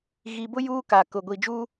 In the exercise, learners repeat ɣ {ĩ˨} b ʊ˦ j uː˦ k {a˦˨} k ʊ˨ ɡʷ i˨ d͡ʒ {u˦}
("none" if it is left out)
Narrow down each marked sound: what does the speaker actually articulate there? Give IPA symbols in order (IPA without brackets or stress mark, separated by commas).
i˨, a˨, uː˦